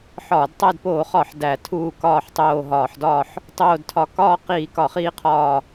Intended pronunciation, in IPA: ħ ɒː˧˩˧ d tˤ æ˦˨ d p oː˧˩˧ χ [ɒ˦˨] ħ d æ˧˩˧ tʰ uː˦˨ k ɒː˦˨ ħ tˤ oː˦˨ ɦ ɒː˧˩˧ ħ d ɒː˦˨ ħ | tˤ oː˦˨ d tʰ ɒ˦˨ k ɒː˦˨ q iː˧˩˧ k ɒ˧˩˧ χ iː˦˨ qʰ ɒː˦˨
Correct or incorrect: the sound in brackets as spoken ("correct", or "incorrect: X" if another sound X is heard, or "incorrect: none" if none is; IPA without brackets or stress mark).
incorrect: ɒ˧˩˧